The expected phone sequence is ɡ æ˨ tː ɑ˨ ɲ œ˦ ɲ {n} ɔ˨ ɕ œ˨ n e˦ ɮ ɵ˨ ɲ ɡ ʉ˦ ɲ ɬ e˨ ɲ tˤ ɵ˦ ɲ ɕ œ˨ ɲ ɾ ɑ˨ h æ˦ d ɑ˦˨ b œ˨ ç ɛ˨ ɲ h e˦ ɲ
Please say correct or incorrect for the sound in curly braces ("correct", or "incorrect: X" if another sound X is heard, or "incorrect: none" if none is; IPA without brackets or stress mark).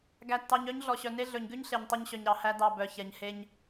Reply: incorrect: ɮ